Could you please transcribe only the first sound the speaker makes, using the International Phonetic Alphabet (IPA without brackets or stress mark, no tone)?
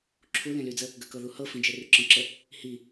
ǁʰ